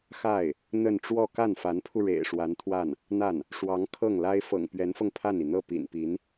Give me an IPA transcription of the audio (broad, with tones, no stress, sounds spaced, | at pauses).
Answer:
x a˥˩ ɪ̯ | n̪ ə˥˧ n ʈ͡ʂ w ɔ˥˧ k a˥˩ n f a˧˥ n pʰ u˧ ɻ ḛ˨˩ ɪ̯ ʂ w a˧˥ n t̪ʰ w a˥˩ n | n̪ a˥˩ n | ʂ w ɑ˧˥ ŋ kʰ ɤ˥˩ ŋ l a˥ ɪ̯ f ɤ̰˨˩ ŋ p ɥ ɛ˧˥ n f ɤ˧ ŋ pʰ a˥˩ n i˩ n̪ ɤ˥˩ p ḭ˨˩ n p i˧˥ n